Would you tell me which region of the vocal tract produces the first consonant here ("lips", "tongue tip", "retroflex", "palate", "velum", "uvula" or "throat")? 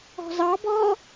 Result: tongue tip